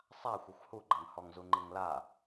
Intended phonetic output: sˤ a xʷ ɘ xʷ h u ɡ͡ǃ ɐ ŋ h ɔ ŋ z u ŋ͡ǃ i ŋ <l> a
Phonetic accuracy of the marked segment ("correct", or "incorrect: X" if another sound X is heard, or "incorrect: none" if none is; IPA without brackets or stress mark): correct